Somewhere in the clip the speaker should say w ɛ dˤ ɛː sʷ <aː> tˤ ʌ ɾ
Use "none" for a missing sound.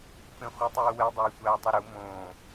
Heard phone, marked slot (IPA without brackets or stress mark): aː